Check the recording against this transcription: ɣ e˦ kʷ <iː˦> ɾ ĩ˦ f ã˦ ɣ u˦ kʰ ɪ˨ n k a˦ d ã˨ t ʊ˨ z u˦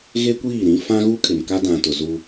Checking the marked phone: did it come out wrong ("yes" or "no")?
yes